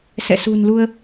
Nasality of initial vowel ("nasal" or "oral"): oral